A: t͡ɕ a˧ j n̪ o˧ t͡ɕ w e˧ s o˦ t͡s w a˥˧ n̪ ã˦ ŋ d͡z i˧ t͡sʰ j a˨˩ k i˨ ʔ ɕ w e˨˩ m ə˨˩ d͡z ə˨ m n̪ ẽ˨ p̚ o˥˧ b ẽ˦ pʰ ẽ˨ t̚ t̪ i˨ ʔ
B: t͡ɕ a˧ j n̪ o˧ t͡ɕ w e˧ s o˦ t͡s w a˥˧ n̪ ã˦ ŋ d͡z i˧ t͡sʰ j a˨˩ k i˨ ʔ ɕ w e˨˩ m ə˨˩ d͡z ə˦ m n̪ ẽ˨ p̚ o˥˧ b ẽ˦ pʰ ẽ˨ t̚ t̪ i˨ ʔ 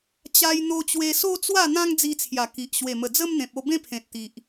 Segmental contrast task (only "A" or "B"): B